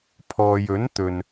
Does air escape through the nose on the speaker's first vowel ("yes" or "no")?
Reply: no